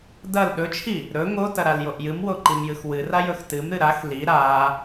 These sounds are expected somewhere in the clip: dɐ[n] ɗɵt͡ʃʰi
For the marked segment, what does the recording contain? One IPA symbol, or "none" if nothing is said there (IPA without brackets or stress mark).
l